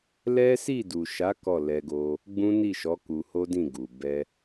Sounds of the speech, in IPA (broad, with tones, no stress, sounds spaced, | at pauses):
l ɛ˦ s i˦˨ d u˨ ʃ a˨˦ k ɔ˦˨ l ɛ˧ ɡ o˧ | ɡ͡b ũ˦ n i˦˨ ʃ ɔ˨˦ k u˧ h o˦ d ĩ˦˨ ɡ u˨ b ɛ˧